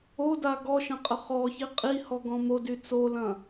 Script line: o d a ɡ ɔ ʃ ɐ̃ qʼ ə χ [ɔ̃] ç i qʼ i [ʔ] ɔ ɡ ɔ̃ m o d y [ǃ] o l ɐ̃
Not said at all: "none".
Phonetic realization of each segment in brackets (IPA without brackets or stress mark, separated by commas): ɔ, h, t͡s